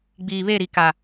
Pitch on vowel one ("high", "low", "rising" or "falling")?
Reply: low